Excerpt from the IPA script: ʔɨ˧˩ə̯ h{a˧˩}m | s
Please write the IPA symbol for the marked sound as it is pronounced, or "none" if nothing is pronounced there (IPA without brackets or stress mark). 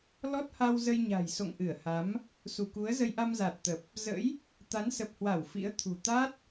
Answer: a˨˦